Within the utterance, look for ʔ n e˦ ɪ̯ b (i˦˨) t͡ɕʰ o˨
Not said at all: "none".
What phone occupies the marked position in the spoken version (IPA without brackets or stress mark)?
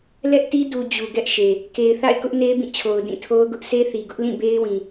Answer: ĩ˦˨